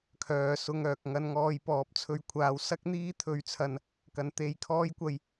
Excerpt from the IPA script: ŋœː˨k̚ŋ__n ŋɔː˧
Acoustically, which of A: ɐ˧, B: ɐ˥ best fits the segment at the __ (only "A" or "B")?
A